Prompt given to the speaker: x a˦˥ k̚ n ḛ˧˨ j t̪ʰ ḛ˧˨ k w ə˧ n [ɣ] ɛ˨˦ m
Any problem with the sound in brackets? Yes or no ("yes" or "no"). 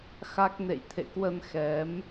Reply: yes